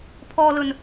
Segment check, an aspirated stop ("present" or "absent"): present